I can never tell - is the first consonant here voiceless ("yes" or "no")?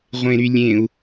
no